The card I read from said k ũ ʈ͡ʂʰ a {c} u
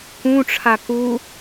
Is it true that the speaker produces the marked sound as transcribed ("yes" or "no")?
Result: no